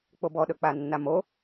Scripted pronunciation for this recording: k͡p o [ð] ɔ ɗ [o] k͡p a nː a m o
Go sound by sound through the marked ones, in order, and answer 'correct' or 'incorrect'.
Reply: incorrect, incorrect

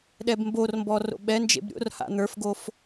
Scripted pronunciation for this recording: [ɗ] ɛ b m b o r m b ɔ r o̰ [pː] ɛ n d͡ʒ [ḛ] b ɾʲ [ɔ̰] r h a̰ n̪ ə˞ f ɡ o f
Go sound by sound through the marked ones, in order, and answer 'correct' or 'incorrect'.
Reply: correct, incorrect, correct, incorrect

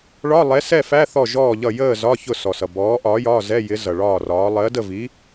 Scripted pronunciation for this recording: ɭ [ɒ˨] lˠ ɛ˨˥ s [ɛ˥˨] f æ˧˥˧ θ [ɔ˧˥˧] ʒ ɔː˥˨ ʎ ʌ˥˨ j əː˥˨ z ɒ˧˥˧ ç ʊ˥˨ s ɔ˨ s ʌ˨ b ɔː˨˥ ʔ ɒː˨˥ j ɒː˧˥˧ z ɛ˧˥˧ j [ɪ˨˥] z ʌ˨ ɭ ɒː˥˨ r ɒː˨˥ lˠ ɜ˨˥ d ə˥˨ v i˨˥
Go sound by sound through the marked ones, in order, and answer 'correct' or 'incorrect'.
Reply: incorrect, correct, incorrect, correct

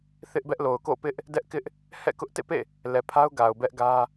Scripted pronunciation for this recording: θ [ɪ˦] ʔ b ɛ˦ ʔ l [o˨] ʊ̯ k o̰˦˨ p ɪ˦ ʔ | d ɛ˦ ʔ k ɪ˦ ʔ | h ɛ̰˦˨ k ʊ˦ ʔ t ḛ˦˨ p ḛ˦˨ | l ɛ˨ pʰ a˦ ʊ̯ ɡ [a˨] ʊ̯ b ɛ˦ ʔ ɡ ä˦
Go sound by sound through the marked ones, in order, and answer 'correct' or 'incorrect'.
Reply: correct, correct, correct

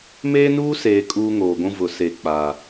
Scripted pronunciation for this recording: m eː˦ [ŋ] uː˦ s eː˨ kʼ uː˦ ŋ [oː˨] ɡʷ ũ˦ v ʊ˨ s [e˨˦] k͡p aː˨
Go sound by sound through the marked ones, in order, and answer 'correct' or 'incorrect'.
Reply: incorrect, correct, incorrect

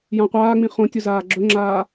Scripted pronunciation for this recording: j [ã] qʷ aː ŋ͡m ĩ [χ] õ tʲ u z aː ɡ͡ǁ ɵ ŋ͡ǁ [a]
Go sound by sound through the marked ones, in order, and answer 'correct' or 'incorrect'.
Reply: correct, correct, incorrect

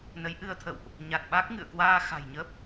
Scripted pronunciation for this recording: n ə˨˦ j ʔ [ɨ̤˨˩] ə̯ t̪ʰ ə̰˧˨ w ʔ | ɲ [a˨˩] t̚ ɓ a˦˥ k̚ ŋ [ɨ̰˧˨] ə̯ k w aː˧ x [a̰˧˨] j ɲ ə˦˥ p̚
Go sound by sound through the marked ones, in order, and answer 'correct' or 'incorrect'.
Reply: incorrect, correct, correct, incorrect

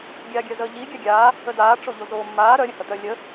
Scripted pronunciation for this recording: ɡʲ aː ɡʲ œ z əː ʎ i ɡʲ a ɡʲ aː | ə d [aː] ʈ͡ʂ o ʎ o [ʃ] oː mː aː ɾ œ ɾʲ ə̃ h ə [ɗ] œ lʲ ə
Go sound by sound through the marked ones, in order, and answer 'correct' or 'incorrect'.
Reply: correct, incorrect, incorrect

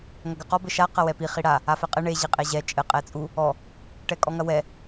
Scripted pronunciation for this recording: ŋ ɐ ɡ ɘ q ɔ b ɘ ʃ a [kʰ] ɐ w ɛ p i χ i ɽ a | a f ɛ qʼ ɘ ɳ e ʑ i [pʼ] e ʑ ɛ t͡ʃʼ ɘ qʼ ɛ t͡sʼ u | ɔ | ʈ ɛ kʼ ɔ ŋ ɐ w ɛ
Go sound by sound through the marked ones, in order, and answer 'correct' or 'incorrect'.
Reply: incorrect, incorrect

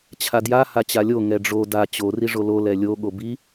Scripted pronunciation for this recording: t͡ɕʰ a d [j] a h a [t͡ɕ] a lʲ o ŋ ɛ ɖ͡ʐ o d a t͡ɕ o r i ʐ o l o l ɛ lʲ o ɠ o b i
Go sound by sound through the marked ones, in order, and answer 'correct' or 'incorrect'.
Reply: correct, correct

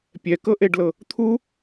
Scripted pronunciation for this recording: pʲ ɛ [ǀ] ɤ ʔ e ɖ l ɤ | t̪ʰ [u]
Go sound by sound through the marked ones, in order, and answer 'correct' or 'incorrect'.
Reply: incorrect, correct

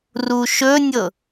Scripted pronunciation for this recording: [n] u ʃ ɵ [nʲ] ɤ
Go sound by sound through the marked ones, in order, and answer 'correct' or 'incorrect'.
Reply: incorrect, correct

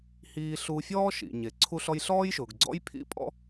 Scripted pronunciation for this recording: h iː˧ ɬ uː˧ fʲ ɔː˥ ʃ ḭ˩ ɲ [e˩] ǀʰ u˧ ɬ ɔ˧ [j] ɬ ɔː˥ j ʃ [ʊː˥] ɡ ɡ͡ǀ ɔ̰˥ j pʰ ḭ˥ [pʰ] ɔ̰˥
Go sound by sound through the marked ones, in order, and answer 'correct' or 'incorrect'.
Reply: correct, correct, incorrect, incorrect

